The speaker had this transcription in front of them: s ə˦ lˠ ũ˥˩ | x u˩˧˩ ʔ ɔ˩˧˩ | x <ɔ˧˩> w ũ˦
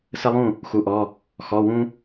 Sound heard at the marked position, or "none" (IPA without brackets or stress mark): ɔ˩˧˩